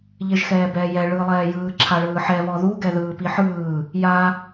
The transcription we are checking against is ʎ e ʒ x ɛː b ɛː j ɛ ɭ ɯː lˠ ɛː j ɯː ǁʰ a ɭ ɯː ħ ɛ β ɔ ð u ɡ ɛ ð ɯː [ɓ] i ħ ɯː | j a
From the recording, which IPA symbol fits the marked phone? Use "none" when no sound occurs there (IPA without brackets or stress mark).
p